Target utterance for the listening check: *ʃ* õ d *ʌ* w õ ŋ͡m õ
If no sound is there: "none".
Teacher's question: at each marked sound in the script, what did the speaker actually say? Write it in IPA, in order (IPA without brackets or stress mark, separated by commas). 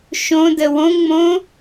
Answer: ʃ, ə